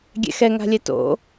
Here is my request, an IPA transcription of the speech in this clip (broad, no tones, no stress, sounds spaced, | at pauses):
ɡʲ ɛ̰ x ɛ ŋ a̤ lʲ ɛ t o̰